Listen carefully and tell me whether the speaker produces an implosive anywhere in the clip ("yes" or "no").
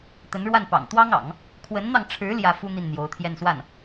no